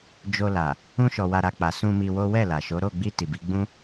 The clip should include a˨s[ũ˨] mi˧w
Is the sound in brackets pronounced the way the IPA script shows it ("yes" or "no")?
no